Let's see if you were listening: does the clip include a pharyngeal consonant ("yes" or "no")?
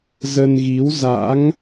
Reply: no